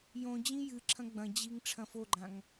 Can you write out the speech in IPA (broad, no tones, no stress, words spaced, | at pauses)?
jõ d͡ʑĩjɨǁʰɐ̃ ɡ͡bɐ̃d͡ʑiŋ ʈ͡ʂʰɐ̃foɡ͡ǃãŋ